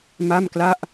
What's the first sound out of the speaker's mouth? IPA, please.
m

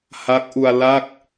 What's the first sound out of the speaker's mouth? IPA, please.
h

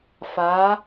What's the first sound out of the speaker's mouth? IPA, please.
f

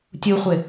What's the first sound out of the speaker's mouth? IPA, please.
tʲ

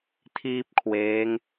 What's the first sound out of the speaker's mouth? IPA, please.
tʰ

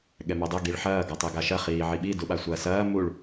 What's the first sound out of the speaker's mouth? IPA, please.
ɠ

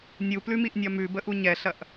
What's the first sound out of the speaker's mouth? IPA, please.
nʲ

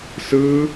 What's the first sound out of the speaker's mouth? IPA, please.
s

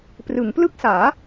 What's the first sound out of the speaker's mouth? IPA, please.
p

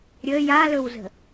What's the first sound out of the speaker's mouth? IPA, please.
ɾʲ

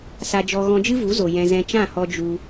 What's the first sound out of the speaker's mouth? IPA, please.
s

